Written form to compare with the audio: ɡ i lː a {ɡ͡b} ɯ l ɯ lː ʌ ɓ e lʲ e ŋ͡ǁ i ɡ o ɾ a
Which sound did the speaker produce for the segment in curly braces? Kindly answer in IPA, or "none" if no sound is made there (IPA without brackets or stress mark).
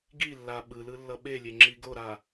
ɓ